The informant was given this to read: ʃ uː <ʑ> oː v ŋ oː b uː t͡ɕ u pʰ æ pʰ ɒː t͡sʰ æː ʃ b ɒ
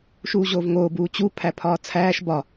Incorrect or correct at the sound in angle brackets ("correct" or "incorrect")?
correct